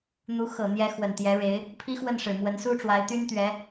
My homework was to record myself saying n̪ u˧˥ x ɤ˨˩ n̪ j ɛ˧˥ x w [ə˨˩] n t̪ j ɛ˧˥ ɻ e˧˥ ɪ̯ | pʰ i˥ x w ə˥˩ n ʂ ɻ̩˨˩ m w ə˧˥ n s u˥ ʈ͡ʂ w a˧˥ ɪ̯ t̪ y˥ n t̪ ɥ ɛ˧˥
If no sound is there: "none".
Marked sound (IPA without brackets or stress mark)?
ə˨˩